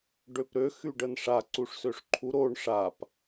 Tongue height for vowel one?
mid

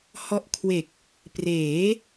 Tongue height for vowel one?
mid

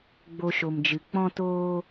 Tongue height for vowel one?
mid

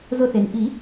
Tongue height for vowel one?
high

